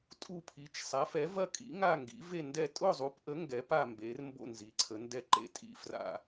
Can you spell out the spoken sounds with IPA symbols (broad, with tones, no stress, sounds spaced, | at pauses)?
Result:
tʼ u˥˧ pʰ i˨˥ t͡ʃ sˤ a˨˥ f ɛ˨˥ v ɐ˥˧ kʼ ḭ˨˥ ŋ a˥˧ ŋ ɡ ḭ˨˥ v e˥˧ n d ɛ˥˧ tʼ ʊ˥˧ zˤ u˨˥ p ʔ ə˨˥ ŋ ɡ ɛ˨˥ p a˥˧ m b e˨˥ r m b o̰˥˧ n z i˨˥ ǀʰ ə˨˥ n d ɛ˥˧ ǃ ḛ˥˧ tʼ ḭ˥˧ f r a̰˥˧